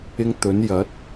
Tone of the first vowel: high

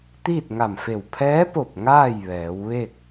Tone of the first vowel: falling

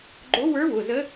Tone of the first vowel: rising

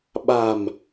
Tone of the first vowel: low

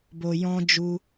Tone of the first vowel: low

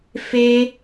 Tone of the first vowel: high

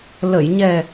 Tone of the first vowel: low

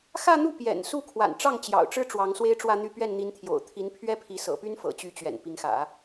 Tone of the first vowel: falling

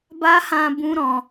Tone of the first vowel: high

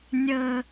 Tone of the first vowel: high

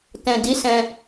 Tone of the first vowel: low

